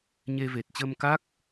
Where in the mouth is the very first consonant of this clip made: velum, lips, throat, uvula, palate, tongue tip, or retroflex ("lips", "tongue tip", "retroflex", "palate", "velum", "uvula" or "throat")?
palate